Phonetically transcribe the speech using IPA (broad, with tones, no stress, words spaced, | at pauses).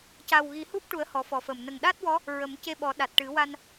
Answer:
ca˨˩wɣi˨˩˦hu˦˥p̚ʈu˨˩˦ə̯ hɔ˨˩˦fɔ˨˩fə˨˩m nə˨˩ŋɗa˦˥t̚wɔ˧˥ | ɹə˨˩˦mce˧ɓɔ˨˩˦ ɗa˨˩t̚ʈɨ˨˩˦ wa˧n